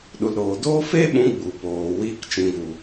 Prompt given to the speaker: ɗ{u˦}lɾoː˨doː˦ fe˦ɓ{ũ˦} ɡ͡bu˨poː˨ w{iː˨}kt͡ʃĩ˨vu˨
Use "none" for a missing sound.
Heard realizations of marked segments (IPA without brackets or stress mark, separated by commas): u˨, ũ˨˦, iː˧